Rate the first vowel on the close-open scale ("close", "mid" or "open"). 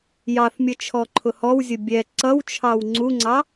open